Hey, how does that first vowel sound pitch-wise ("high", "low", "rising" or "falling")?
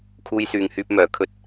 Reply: high